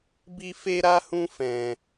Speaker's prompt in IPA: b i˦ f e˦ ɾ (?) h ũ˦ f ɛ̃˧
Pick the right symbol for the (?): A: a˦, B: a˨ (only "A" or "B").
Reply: A